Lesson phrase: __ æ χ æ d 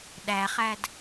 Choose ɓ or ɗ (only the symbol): ɗ